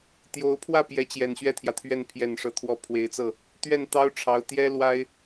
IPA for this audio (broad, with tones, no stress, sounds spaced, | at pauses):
t̪ j o˧˥ ʊ̯ pʰ w ä˥˩ p j ɛ˧˥ t͡ɕ j ɛ˨˩ n ɕ ɥ ɛ˥˩ t̪ʰ j ä˩ t̪ʰ ɥ ɛ˥˩ n pʰ j ɛ˨˩ n ʂ ɤ˧˥ t̪ʰ w ɔ˧˥ pʰ w e˧˥ ɪ̯ t͡s ɤ˥˩ | t̪ ɥ ɛ˥˩ n t̪ ɑ˥ ʊ̯ ʈ͡ʂʰ ɑ˧˥ ʊ̯ t̪ j ɛ˥ l w a˥ ɪ̯